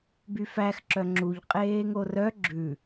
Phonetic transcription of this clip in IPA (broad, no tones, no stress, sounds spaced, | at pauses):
b y f æ x ǁ œ ŋ͡ǁ u ʎ qʼ eː ŋ o r œ ɡ͡ǁ ʉ